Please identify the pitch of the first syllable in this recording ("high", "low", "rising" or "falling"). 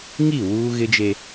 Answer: falling